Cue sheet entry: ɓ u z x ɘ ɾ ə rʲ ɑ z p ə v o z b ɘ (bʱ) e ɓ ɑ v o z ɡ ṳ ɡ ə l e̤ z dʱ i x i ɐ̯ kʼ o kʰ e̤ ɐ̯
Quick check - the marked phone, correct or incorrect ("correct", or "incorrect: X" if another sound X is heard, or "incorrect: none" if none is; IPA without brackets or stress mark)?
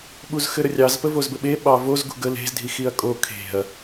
incorrect: ɓ